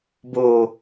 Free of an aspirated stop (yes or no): yes